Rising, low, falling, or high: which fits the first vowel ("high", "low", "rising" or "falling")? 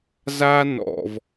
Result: high